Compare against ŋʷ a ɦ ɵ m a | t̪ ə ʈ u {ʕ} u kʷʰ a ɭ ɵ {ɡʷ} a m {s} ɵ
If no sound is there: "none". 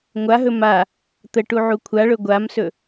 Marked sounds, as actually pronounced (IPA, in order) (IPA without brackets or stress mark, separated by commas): ʕ, ɡʷ, s